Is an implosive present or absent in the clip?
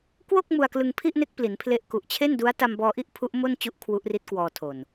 absent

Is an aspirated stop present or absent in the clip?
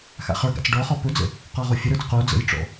absent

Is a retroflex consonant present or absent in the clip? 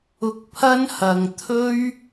absent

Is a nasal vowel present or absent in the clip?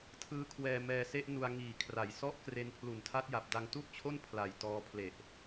absent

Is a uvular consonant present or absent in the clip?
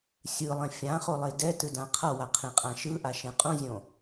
present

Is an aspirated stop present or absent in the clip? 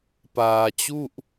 absent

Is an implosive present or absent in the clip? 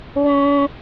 absent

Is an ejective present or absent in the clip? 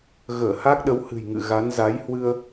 absent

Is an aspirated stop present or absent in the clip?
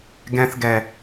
absent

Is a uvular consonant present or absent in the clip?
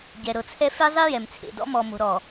absent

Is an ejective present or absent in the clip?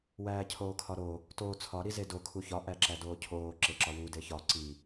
absent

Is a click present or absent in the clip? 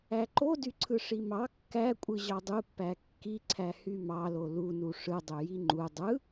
present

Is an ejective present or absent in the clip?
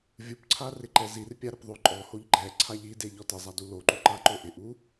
present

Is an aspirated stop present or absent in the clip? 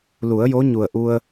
absent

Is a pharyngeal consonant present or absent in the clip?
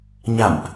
absent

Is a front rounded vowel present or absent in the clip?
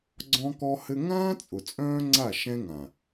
present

